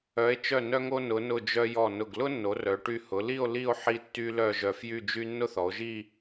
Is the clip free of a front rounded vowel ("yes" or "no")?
no